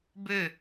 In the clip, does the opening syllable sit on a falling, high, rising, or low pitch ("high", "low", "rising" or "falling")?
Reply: falling